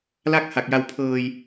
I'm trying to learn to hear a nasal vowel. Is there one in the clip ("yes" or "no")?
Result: no